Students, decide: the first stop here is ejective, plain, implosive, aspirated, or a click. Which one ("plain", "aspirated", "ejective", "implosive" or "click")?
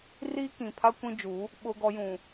plain